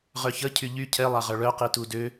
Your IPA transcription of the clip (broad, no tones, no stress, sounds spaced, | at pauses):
ʁ œ ç ə cʰ y ʎ y cʰ ɛ lˠ a ʁ œ ɭ œ q i t u d ø